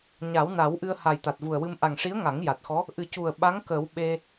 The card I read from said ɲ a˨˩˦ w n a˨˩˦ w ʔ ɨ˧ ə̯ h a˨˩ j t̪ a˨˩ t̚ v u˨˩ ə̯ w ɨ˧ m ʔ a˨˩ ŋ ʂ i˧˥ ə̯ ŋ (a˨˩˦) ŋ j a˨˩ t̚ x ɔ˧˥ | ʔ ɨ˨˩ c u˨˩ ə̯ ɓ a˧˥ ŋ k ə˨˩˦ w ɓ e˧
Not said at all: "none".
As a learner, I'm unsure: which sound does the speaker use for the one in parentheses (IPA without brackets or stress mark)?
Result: a˨˩˦